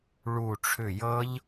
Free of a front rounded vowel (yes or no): no